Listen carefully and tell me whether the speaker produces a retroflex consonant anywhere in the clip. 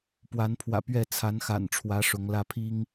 yes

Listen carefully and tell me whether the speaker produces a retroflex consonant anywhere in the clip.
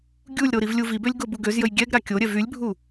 no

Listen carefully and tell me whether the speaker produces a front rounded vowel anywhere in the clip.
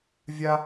no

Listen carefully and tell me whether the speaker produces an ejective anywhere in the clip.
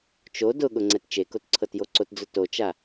no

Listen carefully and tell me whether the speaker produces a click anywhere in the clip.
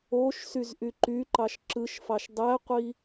yes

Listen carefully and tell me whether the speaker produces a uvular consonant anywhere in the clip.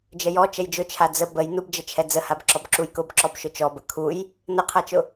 yes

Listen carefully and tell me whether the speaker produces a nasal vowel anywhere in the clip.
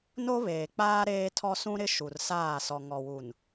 yes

